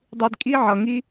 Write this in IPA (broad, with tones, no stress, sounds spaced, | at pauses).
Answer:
dˤ i˧ d kʼ i˦ ʕ ʌ˧ ŋ i˦